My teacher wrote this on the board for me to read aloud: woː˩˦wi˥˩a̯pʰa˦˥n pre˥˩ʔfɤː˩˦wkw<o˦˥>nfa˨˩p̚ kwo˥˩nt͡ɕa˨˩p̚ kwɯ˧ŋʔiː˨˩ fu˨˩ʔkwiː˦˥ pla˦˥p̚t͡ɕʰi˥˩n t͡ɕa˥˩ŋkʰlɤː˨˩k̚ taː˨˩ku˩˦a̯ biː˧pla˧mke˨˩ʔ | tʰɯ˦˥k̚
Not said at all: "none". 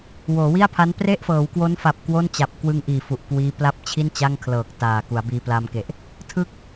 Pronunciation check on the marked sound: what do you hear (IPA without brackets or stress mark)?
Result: o˦˥